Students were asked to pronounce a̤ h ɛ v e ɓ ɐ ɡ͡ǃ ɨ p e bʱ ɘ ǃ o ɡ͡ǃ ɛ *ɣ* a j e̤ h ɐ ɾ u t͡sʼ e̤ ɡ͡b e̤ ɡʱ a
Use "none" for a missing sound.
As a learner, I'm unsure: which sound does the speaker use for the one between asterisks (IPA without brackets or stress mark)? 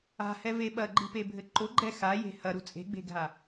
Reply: x